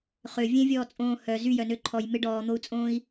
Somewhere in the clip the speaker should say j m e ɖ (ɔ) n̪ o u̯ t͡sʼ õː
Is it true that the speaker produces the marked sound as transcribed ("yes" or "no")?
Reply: no